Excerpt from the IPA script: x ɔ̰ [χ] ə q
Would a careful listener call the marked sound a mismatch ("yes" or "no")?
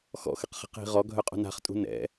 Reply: yes